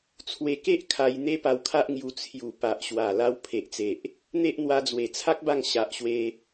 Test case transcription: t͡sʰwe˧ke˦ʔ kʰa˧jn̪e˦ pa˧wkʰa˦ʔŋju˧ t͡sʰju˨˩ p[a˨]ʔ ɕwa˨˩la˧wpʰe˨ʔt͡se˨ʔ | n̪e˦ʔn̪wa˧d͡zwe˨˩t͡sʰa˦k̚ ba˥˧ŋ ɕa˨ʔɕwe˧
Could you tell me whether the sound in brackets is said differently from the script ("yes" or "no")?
no